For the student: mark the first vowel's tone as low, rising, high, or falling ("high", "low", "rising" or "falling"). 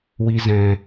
high